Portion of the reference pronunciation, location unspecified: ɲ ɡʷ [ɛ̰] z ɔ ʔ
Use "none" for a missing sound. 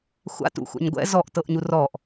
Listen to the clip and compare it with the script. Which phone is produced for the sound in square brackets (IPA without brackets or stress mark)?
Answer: ɛ̰